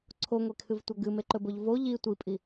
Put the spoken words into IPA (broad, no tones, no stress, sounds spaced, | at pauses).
ǀʰ o ŋʷ e kʰ ɨ v tʷ ɐ ɡ ɨ m e ǃ ɵ b o ʎ v o ʎ i tʷ i pʼ i